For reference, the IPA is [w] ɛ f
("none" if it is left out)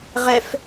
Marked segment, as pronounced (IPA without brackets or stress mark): ʁ